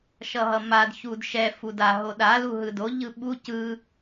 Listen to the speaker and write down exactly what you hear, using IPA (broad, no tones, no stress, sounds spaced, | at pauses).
ʃ ʌ ɦ ʌ m a d ç u d ʃ ɛ f u d a ɦ o ɗ a l u ɦ ɯ d o ʎ ɯ ɓ u c ɯ